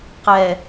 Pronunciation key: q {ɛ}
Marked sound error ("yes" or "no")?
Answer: no